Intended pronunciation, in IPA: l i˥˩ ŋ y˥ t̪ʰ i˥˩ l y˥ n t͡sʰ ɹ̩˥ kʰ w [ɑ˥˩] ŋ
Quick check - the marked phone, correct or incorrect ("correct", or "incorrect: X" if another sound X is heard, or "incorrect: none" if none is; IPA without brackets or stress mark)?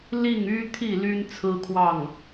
correct